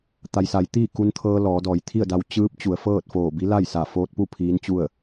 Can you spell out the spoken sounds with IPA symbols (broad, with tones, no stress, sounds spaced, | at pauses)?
t̪ a˩ j s a˩˧ j t̪ iː˥˨ k u˧ n t̪ʰ ɤː˧ l ɔː˩˧ d ɔː˩˧ j t̪ʰ i˥˨ ə̯ d a˧ w t͡ɕ ɯː˧˥ p̚ t͡ɕ u˩˧ ə̯ f ɤː˥˨ t̚ f oː˧˩ b i˧˥ l a˥˨ j s a˧˩ f oː˧ t̚ p u˥˨ pʰ iː˧˥ n t͡ɕ u˥˨ ə̯